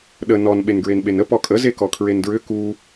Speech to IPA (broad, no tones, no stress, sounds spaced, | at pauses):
ɗ ə n ɔ n ɓ e n ɡ ɹ e n ɓ e n ə p ɔ kʼ ə z e k ɔ kʰ ɹ e n d ɹ ʏ k u